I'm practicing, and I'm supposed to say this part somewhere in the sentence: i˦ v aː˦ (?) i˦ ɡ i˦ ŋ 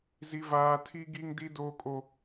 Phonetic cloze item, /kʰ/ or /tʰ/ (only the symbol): tʰ